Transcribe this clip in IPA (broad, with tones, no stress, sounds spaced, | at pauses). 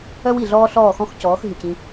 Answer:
œ˦ w i˨ ɮ ɔː˦ ɬ ɔː˦˨ x ɔ̃˦ x c ɔː˨˦ x ɦ y˨ c ĩ˦